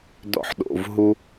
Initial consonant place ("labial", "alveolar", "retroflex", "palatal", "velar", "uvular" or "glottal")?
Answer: alveolar